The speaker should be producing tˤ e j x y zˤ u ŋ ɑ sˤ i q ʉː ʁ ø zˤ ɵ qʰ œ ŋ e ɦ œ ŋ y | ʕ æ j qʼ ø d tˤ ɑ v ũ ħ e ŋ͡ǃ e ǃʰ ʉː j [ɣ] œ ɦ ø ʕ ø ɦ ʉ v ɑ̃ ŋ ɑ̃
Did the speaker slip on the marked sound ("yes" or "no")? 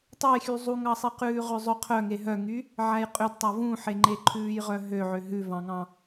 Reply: yes